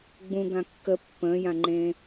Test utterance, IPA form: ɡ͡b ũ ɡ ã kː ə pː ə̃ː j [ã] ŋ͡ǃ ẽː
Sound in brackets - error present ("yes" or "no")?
no